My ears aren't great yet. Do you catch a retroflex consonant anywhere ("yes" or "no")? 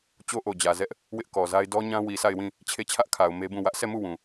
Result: no